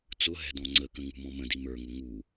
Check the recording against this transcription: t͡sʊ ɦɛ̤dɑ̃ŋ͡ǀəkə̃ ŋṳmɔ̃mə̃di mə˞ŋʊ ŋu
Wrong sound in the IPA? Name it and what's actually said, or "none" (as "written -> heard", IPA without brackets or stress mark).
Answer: ɑ̃ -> ɔ̃